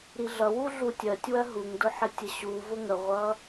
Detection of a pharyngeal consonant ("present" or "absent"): present